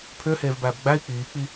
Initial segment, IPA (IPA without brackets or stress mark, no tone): pʰ